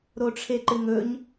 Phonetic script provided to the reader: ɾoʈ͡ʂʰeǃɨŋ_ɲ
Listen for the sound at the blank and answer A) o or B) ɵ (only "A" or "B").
B